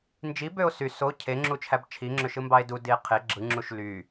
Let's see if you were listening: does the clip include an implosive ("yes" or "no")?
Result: no